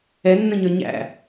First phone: ɛ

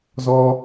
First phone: z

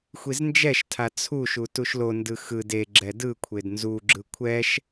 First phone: xʷ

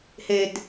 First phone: h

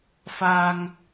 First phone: f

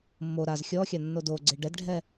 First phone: mː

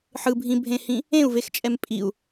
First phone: ħ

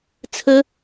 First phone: t͡sʰ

